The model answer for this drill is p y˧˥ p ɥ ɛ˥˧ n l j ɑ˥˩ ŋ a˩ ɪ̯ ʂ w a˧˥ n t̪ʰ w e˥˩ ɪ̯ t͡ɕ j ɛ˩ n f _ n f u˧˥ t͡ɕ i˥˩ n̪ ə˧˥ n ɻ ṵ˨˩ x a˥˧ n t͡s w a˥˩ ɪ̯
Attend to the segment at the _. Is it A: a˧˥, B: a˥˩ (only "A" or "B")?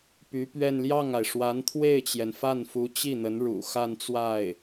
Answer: B